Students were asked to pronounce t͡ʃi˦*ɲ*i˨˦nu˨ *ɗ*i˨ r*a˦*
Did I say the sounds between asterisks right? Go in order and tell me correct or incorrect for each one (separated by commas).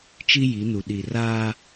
incorrect, correct, incorrect